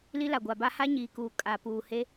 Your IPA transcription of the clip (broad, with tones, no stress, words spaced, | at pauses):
li˦la˨ɡʷa˨ba˦ ha˦ɲiː˨kuː˨ kʼa˨ puː˨he˦